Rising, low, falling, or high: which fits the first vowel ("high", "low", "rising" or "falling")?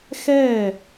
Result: falling